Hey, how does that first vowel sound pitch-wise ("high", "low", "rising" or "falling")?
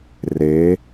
rising